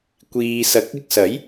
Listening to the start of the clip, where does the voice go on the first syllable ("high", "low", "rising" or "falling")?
low